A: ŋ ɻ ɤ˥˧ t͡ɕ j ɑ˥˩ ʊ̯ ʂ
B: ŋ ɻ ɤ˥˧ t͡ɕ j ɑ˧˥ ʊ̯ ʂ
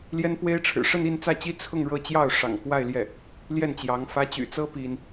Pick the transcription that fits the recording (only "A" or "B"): A